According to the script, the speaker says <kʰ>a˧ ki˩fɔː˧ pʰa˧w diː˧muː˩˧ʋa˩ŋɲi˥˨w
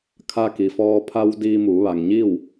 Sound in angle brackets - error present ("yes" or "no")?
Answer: no